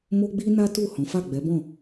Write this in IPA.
mo˦ ɡ͡bi˦na˦ tu˦˨hɔ̃˨˦ fa˦˨ɡ͡bɛ˨˦bɔ̃˦˨

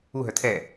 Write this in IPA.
uɦœ tʰɛ

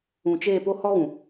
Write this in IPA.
ũ˨t͡ʃeː˦˨po˦ hɔ˦ɣũ˨

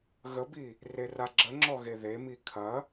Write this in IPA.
ɣəbi | reraɡ͡ǁəŋ͡ǁɔ ɣeðemi kʰɐ

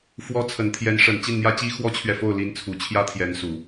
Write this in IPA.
fwɔ˧˥ t͡sʰə˨˩nt̪ʰjɛ˧˥nʂə˨˩n t͡ɕi˥˩nn̪jä˥t͡ɕi˥ xwɔ˥t͡ɕʰɥɛ˨fo˥˩ʊ̯ li˧˥nt͡sʰu˨˩ t͡ɕʰjä˥t̪ʰjɛ˧˥nsu˨˩˦

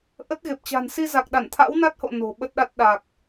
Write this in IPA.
ʔə˦˥t̚ ɣe˨˩p̚t͡ɕa̤˨˩n si˧za˨˩k̚ɗa˧˩n t̪ʰa̰˧˥wna˦˥t̚ho̰˧˨ no̤˨˩ɓə˦˥t̚ɗa˦˥t̚ ɗa˨˩k̚

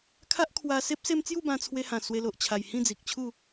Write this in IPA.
kʰa˦ʔkʰwa˧se˦p̚ se˦m t͡sju˥˧bã˧ t͡sʰwe˧hã˨˩ swe˧lo˨ʔ t͡ɕʰa˨˩j hĩ˥˧d͡zi˨k̚t͡ɕʰu˥˧

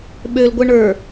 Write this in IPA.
ɓølɡʷɛ ɳə˞

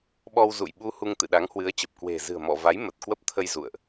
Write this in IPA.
ɓɔ˧wzṵ˧˨jɓu˧hu˧ŋ t̪ɨ̰˧˨ɗa˨˦ŋhwɨ˨˦ə̯t͡ɕə˨˩p̚ kwe̤˨˩ zɨ̤˨˩ə̯mɔ̰˧˨va˨˦j mə˨˩t̚kwə˦˥p̚t̪ʰə˧j zṵ˧˨ə̯ʔ

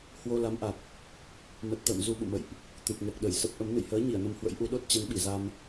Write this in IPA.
hwo˧ la˨˦mʔa˨˩k̚ | mə˨˩t̚ t̪ə̰ː˧˨m zu˧ɓṵ˧˨mə̰˧˨jʔ | t̪ɨ˨˩p̚ŋɛ˨˩k̚ɗə˧˩j sə˦˥p̚ʔə˨˦m nɨ̰˧˨jhəː˨˦ ɲi˧˩ə̯nə˧mhwə̰˧˥jʔu˨˦ ɗo˦˥t̚t͡ɕɛ˨˦nɓi˧˩za˧m

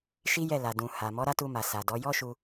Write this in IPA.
ʃi˦jɛ˦˨la˨ dũ˨ ha˨ mɔ˨˦ɾa˦tu˧ma˨ sa˨dɔ˨˦ jɔ˦ʃu˧

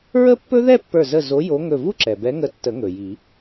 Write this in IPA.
ɹə˥pːɵ˥ ðɛ˥˧pːə˞˧˩zə˧˩ zo˨˦ jo˨˦ŋɵ˧˩vu˥ǁɛ˩ bɛ˨˦ŋə˧˩tːə˨˩˦ ŋɵ˩ji˨˩˦

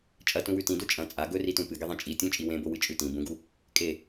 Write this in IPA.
t͡ʃʼɐtũwʉ tĩdo t͡ʃʼɐ̃ t͡sʼa ɡɵritũ pɨɡeðˤẽ t͡ʃʼi tʲũt͡ʃʼi wẽbowɨt͡ʃʼʉ tĩ bũɡu | kʼe

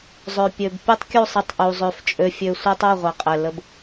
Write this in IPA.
zˤø˨pʲø˨b pʲɛ˦tˤkʲu˦˨sˤɐ˧tˤʔu˨ zˤø˧f t͡ʃʼø˧fʲø˧ sʷɛ˦tˤu˦˨ʁʷɛ˨qʼɛ˨ lə˦b

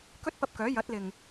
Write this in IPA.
kɵ˥t̚ pɐ˧p̚kœː˨˥ jɐ˨˥t̚lɪ˨ŋ

